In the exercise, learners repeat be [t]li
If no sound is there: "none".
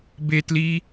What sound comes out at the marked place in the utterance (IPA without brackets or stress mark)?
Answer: t